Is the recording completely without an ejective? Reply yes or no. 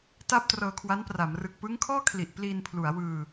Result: yes